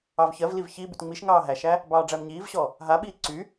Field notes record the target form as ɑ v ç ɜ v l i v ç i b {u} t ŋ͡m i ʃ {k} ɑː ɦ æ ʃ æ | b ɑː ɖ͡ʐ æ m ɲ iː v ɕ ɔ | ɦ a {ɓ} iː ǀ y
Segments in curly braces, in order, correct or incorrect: incorrect, incorrect, correct

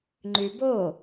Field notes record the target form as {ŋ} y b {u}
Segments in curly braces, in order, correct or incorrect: incorrect, incorrect

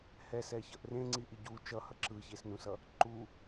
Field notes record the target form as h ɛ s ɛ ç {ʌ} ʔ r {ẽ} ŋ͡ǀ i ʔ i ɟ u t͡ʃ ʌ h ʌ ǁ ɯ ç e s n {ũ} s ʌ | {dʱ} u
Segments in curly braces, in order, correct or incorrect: correct, correct, correct, incorrect

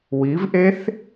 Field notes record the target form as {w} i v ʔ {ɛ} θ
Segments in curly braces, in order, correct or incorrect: correct, incorrect

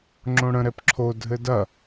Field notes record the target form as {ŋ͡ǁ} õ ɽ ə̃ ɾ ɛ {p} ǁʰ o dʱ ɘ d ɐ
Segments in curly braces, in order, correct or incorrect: correct, correct

